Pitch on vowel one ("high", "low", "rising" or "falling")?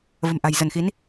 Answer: low